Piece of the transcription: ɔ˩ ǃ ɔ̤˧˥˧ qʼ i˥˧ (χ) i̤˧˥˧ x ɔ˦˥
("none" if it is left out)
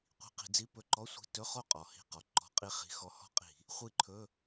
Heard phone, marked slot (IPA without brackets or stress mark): χ